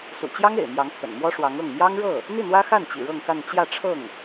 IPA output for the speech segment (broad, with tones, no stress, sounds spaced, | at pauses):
s ṵ˨˩ t͡ɕ j ɑ˥ ŋ ḛ˨˩ ɪ̯ m j ɑ˧˥ ŋ t̪ʰ ə̰˨˩ n m w ɔ˥ ʂ w ɑ˧˥ ŋ ɤ˥˩ ŋ m j ɑ˥ ŋ ɻ ɤ˥˩ | n̪ i˥˩ n̪ w ä˥ x a˥˩ n t͡ɕ ḭ˨˩ ɻ ɤ˥˧ ŋ k a˥˧ n t͡ɕ j ä˥˧ ʈ͡ʂʰ ɤ˥˩ ŋ